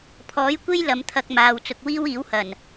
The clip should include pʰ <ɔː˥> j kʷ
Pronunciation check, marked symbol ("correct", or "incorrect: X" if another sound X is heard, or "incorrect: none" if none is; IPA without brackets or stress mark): incorrect: ɔː˨˥